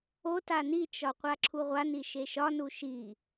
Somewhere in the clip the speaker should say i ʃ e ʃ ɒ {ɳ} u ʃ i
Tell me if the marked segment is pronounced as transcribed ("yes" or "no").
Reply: no